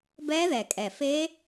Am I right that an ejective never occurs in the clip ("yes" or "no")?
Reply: no